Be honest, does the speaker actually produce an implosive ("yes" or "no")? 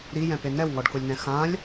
no